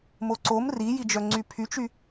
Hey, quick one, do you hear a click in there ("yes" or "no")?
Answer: yes